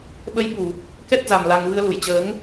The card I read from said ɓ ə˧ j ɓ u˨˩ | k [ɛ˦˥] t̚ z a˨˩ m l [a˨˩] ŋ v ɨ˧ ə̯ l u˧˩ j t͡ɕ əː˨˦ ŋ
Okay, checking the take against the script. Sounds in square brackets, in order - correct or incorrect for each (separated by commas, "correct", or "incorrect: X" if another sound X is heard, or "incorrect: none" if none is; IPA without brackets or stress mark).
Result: correct, correct